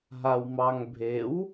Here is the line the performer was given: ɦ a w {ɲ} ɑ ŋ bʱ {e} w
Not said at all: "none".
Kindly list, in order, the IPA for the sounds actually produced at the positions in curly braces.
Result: m, e

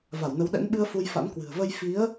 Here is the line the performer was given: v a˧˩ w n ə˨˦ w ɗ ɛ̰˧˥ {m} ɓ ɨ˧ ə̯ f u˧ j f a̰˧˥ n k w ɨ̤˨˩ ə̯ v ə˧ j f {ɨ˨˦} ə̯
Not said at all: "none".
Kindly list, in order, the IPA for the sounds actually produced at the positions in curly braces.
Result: n, i˨˦

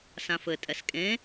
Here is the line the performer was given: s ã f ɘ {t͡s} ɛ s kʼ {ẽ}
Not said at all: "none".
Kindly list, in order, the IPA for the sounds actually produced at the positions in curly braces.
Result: tʼ, ẽ

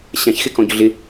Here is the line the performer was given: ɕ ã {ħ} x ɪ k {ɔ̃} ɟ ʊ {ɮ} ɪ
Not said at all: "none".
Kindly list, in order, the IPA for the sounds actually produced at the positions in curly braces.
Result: ç, ɔ̃, ɮ

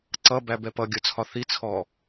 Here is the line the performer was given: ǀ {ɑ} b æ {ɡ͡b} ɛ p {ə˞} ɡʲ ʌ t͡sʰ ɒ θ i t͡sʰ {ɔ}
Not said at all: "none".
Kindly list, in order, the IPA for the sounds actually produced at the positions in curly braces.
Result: ʌ, b, ʌ, ɔ

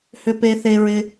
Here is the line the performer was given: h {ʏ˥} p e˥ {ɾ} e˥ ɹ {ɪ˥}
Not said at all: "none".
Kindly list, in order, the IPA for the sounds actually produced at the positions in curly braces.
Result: ʏ˥, θ, ɪ˥

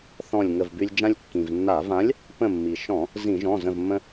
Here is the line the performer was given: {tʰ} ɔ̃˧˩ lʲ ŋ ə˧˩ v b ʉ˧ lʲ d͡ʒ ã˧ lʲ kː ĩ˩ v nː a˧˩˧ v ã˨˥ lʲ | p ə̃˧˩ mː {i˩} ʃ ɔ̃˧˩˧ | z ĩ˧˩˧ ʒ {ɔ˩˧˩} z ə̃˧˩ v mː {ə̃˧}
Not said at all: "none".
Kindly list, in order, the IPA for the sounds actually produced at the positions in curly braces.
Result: θ, i˩, ɔ̃˩˧˩, ə̃˧

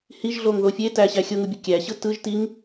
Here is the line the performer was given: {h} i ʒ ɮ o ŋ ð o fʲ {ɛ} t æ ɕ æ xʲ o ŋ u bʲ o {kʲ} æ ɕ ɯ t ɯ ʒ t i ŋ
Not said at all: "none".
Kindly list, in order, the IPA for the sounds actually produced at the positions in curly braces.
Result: h, e, kʲ

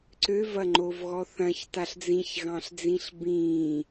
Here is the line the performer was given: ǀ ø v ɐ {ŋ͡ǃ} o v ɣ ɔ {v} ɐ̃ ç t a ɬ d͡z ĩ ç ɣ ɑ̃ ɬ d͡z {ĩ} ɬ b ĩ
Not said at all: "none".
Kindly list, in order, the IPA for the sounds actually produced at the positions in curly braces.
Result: ŋ͡ǃ, θ, ĩ

